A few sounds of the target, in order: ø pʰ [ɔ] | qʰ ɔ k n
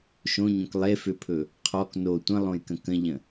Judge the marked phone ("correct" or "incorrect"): incorrect